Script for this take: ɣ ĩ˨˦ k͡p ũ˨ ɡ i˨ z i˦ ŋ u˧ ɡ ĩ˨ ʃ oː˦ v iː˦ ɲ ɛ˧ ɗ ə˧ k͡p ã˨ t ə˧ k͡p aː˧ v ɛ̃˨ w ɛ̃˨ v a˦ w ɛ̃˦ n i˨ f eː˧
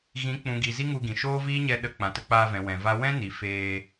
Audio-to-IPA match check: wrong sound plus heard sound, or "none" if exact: none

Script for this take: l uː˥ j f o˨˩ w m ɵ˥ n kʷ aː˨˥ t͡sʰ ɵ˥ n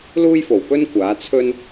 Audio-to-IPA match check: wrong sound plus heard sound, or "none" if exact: m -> p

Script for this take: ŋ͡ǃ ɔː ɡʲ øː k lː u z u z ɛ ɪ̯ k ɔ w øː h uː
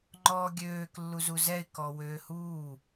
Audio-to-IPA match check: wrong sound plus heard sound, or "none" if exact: none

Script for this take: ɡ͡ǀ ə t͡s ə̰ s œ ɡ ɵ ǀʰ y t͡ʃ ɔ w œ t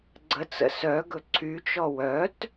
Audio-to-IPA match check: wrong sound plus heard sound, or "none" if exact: none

